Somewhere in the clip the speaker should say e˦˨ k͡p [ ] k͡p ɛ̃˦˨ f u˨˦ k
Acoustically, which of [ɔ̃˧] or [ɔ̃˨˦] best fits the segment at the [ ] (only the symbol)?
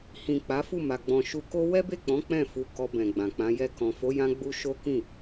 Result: ɔ̃˨˦